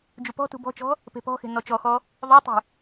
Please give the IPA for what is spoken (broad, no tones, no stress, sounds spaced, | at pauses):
d͡ʒ u p ɔ̤ t ṳ b ɔ̤ t͡ʃ ɔ̤ | p e̤ p ɔ̤ x e̤ n ɔ t͡ʃ ɔ x ɔ | ðˤ o tˤ ṳ